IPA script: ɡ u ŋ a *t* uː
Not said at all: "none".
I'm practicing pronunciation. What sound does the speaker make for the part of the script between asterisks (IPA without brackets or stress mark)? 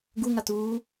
t